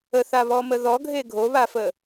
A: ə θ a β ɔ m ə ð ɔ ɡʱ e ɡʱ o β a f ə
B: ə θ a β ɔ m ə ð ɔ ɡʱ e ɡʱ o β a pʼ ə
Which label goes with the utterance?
A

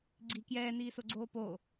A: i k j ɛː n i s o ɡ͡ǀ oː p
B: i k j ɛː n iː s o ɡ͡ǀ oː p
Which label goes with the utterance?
B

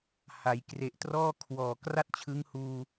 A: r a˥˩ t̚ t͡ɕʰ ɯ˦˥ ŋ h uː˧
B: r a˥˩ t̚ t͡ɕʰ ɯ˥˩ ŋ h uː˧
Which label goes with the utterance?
A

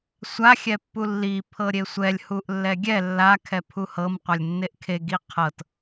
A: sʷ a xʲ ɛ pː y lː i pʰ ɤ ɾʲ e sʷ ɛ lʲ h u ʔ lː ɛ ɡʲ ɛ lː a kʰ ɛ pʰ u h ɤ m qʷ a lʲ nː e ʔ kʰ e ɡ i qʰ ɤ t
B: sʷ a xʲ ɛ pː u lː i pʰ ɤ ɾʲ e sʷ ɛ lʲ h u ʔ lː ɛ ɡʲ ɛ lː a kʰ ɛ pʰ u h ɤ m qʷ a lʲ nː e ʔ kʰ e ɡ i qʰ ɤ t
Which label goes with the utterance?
B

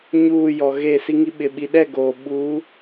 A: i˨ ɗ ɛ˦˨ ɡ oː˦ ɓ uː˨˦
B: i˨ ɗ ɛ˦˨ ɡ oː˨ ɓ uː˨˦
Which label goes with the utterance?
B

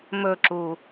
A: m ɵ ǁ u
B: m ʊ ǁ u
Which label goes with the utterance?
A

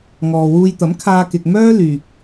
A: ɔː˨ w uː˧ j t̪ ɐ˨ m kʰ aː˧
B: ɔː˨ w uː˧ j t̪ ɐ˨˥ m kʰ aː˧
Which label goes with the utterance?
B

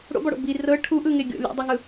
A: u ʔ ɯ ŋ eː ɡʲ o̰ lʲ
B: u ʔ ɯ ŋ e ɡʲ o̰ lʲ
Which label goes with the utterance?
B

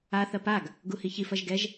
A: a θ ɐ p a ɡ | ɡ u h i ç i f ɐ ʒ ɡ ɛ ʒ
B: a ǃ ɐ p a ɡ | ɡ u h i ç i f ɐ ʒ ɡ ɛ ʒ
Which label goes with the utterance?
A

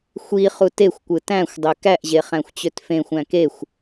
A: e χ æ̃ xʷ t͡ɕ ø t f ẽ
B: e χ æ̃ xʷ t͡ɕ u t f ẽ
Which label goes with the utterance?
A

